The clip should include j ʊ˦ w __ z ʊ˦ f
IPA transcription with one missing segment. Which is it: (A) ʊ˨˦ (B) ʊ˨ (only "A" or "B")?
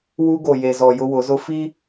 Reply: A